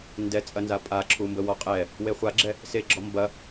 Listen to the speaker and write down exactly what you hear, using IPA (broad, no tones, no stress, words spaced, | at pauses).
ndɛt͡sʼɐnza pʼaǁʰu mbəwɔqʼɛ | weχʷaɡ͡ǁɛ | seɡ͡ǁɔ mbɐ